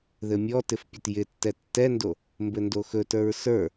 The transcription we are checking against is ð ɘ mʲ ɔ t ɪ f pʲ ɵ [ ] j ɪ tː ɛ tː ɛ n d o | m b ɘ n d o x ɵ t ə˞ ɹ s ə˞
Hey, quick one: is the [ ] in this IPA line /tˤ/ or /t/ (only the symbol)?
t